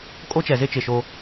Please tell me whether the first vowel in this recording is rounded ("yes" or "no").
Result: yes